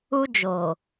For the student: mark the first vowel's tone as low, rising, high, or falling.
high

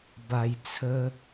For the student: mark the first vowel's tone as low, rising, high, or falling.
low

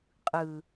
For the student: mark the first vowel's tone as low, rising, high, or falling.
low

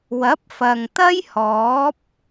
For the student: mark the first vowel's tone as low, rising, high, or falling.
rising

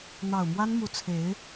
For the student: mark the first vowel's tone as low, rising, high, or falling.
low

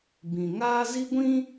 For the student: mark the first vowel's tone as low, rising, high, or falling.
low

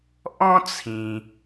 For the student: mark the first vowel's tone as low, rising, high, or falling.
high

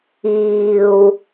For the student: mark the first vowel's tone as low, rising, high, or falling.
low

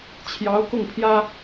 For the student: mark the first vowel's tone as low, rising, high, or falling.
rising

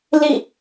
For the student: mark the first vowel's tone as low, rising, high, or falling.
falling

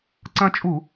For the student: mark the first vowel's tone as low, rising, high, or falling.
high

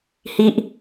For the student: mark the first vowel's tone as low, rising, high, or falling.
high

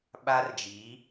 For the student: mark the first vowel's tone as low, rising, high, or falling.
high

